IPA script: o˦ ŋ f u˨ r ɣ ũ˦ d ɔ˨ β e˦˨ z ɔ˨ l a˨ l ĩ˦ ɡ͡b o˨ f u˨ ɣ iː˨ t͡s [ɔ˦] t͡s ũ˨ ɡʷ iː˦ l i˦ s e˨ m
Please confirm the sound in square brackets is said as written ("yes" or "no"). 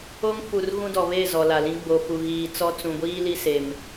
yes